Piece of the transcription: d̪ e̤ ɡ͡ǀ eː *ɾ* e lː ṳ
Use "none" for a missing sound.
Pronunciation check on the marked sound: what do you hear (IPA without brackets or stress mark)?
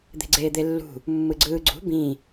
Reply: d̪